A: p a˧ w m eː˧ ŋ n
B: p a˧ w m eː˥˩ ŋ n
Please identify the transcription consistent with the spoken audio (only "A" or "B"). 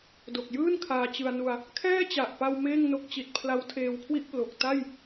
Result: B